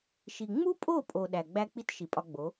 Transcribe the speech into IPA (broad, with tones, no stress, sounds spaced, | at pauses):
ʃ i˨ ŋ͡m u˦ pʼ o˦˨ pʼ o˨ ɗ æ˨ ɡ͡b æ˦ k͡p i˦ t ʃ i˨ pʼ ɒ˧ ɡ͡b o˨˦